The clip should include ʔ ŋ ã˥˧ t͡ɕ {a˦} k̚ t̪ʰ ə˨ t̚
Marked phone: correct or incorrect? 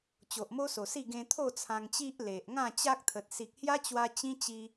correct